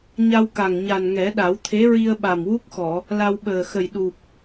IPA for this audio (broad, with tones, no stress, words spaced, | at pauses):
ɲa˧wka˨˩ŋ ɲa˨˩nŋɛ˨˩˦ɗa˨˩˦wt̪ʰe˧˥ ɹi˧ə̯ɓa˨˩m wu˦˥k̚xɔ˨˩˨ | la˧w ɓəː˨˩xə˨˩j ɗu˨˩p̚